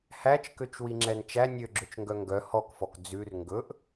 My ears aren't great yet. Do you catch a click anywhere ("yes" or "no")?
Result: yes